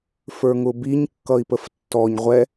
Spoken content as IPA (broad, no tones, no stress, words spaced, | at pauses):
fə˞ŋʊbiɲ kːʌi̯pəftːɔɲ ʁʷɛ